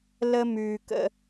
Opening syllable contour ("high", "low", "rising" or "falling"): high